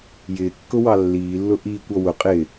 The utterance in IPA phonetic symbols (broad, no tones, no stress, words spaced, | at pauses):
jɪːkːʊwɑ lːiːlːʊ ʔiːkʷɔ wʊ qʼɪː